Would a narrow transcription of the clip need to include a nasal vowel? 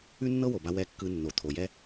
no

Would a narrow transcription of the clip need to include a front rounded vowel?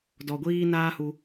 no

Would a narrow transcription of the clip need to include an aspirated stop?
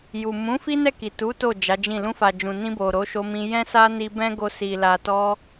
no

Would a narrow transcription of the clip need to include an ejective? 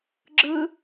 no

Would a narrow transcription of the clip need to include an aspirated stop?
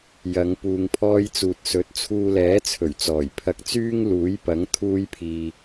yes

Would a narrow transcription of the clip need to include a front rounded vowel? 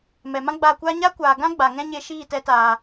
no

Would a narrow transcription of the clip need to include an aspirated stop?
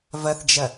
no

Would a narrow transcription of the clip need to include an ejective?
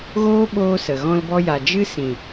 no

